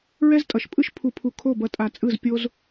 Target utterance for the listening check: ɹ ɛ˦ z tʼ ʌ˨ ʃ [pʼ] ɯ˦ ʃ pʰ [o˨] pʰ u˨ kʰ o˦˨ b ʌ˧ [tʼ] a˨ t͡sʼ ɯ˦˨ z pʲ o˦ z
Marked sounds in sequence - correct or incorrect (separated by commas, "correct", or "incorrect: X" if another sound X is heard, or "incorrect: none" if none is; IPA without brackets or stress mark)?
correct, incorrect: u˨, correct